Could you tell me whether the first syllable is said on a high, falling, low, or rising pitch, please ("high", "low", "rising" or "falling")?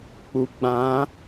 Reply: low